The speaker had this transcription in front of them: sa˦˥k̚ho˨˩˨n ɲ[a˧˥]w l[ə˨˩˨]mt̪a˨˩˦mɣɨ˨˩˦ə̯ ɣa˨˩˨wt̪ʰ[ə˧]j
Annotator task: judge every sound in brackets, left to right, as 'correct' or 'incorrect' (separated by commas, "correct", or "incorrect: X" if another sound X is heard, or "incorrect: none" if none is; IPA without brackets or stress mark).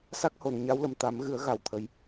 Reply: correct, correct, incorrect: ə˨˩˦